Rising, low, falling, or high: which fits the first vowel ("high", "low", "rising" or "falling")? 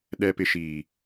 low